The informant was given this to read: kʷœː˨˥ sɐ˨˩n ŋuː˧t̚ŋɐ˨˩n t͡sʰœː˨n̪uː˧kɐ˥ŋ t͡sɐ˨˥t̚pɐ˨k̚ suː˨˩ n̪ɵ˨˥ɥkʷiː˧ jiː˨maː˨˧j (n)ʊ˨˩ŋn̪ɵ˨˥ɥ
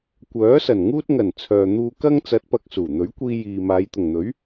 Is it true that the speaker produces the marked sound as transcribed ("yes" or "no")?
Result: no